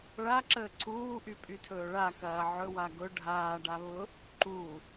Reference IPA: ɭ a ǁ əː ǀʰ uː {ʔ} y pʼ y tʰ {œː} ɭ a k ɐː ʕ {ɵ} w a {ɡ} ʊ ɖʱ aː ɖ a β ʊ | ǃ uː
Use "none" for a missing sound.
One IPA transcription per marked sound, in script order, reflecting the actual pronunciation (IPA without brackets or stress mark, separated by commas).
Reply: ʔ, ɵː, ɵ, ɡ